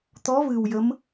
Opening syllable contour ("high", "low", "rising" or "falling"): rising